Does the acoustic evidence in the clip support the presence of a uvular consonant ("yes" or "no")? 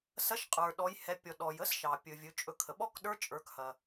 yes